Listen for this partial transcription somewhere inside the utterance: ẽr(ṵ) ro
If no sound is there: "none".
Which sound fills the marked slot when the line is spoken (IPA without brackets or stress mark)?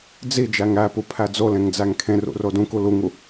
ṵ